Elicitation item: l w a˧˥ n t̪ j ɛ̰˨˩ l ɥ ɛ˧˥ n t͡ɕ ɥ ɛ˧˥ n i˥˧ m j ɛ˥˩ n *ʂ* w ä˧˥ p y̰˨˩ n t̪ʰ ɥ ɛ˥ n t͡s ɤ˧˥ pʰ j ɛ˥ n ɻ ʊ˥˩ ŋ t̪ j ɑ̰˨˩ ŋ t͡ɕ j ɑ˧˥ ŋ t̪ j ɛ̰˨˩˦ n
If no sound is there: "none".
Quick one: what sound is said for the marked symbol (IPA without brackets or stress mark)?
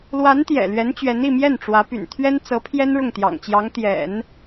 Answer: ʈ͡ʂ